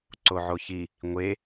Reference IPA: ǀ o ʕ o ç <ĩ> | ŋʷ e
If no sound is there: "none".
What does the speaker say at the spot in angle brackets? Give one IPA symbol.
i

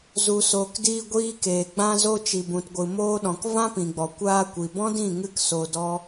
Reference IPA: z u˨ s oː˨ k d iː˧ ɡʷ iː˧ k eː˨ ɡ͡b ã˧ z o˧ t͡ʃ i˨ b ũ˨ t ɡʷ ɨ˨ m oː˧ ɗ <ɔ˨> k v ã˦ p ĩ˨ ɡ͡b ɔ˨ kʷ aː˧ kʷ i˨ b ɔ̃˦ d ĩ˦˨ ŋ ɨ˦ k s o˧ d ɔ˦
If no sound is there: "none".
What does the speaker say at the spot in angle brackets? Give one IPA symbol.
ɔ̃˨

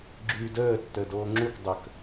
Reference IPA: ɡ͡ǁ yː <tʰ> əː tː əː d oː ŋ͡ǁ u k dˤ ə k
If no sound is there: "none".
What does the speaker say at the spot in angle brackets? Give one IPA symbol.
d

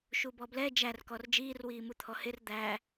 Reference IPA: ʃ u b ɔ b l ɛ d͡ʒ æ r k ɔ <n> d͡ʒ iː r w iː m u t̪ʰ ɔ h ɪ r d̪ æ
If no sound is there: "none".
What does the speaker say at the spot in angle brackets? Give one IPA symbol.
r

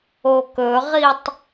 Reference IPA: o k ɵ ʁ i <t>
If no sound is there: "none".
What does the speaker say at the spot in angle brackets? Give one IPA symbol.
tˤ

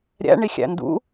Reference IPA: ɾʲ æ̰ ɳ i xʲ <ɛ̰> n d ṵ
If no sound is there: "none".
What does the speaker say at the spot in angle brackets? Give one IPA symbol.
æ̰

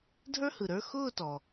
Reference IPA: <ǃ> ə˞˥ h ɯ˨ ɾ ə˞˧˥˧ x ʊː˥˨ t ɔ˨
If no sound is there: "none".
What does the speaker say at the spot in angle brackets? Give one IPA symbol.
dʱ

